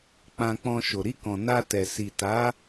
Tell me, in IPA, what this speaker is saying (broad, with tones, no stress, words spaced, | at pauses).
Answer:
k͡pã˧k͡pɔ̃˧ʃo˨ ɾi˧kɔ̃˨ na˧tɛ˨ si˨ta˨˦